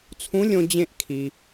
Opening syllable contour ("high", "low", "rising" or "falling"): rising